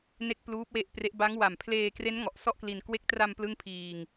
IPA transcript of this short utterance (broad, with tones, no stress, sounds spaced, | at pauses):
n e˥˩ k̚ p l uː˦˥ p̚ w e˦˥ ʔ p r e˦˥ ʔ b a˦˥ ŋ w a˨˩ m pʰ l eː˧ k r e˦˥ n ŋ ɔ˨˩ ʔ s ɔ˥˩ ʔ k l i˧ n k w e˦˥ k̚ t r a˧ m p l ɯ˥˩ ŋ pʰ iː˧ ŋ